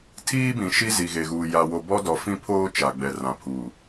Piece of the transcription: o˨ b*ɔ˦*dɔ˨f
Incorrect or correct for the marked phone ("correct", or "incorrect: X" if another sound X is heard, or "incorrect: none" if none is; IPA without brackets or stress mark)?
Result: correct